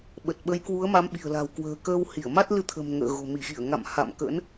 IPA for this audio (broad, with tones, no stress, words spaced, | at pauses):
ɓə˨˩t̚ɓə˨˦jkwu˨˦ə̯ ma˨˦mɓi̤˨˩ə̯la̤˨˩w kwə̤ː˨˩kəː˧whi˧˩ə̯ ma˦˥t̚lɨ˧t̪ʰə̤˨˩m ŋə̰ː˧˨ɣo̤˨˩ mi˧˩xi˧˩ə̯ŋa̰˧˨m ha̰˧˨m kə̰˧˥n